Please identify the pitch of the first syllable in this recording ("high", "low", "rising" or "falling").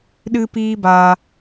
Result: high